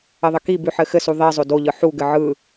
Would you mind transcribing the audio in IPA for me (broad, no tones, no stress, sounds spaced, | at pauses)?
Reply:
ɘ ðˤ ɘ k i b ʉ ħ ɘ x ɘ s u ðˤ i zˤ o d o ʎ ɯ ħ u ɡ ɘ ʕ ɯ